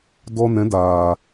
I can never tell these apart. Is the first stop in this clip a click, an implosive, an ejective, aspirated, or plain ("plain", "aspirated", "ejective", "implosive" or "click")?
plain